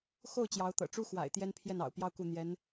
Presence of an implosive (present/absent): absent